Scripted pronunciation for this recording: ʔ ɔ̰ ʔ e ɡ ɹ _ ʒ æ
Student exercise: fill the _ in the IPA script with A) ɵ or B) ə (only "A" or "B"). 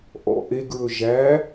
A